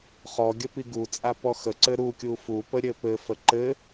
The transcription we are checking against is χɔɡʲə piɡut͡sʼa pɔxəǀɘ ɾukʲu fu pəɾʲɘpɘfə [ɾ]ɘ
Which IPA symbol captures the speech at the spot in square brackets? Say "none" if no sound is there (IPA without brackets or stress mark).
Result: ǃ